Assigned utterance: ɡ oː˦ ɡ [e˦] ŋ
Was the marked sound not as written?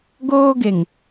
yes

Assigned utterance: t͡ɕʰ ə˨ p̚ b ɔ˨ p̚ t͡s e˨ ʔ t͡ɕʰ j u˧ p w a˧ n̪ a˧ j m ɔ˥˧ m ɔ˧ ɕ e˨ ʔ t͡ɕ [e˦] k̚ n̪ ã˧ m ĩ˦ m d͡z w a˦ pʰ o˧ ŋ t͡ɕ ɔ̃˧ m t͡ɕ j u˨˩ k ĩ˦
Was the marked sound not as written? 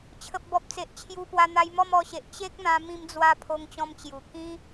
no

